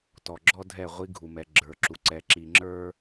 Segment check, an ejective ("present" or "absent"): absent